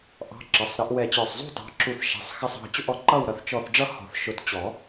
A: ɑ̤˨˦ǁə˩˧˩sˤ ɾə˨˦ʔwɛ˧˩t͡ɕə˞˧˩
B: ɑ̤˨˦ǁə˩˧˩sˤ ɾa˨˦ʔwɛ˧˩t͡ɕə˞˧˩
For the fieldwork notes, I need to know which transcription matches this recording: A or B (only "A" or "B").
A